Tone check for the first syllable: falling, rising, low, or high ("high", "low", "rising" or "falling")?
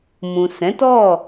low